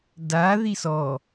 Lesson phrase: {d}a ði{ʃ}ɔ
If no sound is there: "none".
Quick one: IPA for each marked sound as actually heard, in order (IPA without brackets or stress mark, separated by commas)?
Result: d, s